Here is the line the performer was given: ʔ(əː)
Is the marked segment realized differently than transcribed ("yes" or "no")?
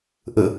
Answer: yes